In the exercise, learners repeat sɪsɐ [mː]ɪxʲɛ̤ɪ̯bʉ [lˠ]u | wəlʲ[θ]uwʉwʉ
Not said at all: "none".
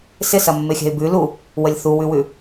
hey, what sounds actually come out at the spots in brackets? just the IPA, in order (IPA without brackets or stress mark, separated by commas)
mː, l, θ